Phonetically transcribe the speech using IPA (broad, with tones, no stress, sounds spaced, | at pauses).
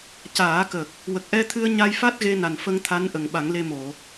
c aː˨˩˦ k ə˨˩ k̚ | w ə˨˩ k̚ ʔ ɛ˧ t̪ʰ ɨ˧ ə̯ ɲ a˧ j f a˦˥ t̚ ɣ e˧ n a˨˩ n f ə˧ ŋ t̪ʰ a˧˥ n ʔ ə˨˩ ŋ ɓ a˨˩˦ ŋ l e˧ m o˨˩˨